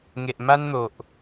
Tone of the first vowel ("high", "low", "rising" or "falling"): low